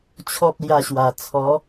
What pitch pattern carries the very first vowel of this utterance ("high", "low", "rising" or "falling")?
high